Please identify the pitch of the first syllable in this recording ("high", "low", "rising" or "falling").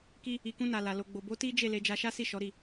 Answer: high